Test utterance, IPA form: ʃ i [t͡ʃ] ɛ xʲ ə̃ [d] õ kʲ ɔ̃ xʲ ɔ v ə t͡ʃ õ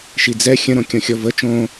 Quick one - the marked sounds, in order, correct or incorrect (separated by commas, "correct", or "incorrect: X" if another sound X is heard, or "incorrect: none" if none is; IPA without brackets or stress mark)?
incorrect: d͡z, incorrect: ɾ